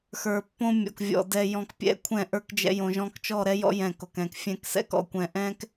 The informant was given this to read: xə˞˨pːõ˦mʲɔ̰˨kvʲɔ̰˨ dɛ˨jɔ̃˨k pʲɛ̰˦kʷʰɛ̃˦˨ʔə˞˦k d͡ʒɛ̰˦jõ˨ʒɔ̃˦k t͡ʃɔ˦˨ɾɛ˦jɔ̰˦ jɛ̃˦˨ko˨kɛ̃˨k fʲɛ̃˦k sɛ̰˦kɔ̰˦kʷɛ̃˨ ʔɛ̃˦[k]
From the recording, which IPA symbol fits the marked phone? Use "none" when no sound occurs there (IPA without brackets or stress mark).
k